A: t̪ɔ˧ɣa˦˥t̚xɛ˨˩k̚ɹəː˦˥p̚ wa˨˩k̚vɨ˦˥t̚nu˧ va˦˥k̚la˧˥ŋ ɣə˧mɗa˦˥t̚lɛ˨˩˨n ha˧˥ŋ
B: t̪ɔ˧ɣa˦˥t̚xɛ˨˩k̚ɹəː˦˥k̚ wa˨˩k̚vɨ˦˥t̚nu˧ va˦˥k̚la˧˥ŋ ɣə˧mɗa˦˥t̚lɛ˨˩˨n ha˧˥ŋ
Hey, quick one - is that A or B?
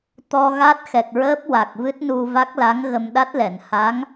A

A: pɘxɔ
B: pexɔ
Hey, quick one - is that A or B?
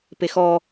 B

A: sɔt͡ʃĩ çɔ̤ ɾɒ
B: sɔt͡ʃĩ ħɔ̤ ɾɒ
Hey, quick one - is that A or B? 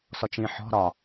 B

